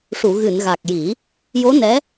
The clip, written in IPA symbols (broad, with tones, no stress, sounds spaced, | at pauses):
ʂ u˨˩˨ ɣ ɨ˨˩˨ n ɣ a˨˩ k̚ j i˨˩˦ | j o˧˥ n ɛ˧˥